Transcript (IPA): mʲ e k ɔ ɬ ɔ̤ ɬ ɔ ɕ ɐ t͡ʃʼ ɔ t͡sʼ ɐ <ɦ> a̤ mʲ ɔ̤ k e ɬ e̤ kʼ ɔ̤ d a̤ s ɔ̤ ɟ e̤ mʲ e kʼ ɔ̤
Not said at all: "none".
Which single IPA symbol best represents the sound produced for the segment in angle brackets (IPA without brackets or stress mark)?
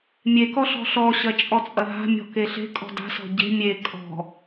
ɦ